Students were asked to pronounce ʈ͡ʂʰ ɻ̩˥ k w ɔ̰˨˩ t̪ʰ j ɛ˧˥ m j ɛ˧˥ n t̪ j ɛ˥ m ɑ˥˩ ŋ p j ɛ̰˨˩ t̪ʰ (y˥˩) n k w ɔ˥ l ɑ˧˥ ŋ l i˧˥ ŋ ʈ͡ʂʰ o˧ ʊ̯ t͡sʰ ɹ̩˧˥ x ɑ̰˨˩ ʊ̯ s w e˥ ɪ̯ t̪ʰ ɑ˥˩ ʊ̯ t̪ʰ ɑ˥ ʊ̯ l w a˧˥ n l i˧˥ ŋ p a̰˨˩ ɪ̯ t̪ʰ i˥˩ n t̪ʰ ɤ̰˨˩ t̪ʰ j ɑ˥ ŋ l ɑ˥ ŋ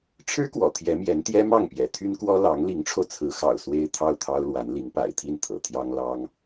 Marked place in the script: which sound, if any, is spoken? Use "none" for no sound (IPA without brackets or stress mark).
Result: y˥